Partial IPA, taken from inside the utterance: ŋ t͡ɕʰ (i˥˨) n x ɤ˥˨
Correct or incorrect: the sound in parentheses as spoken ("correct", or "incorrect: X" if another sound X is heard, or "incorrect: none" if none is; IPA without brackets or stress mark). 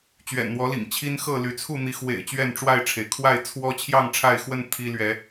incorrect: i˦